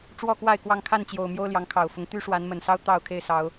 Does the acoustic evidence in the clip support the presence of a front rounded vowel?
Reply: yes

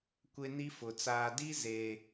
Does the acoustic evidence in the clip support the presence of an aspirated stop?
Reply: no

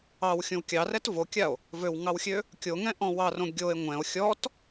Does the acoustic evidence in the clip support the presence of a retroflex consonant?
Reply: no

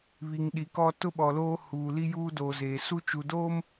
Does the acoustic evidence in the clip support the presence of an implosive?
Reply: yes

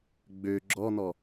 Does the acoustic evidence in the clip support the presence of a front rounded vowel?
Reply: yes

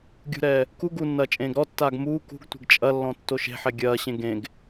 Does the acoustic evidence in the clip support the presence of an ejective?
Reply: yes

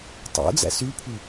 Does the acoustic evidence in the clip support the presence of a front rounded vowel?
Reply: yes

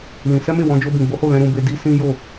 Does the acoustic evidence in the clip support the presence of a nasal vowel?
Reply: yes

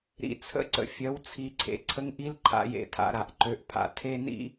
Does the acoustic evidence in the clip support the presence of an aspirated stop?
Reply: yes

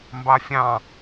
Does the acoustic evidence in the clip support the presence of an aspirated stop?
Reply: no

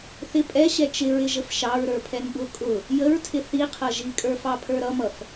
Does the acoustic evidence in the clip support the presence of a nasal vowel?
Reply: no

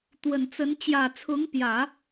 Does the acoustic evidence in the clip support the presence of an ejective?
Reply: no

